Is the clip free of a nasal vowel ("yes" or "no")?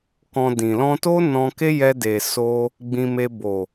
no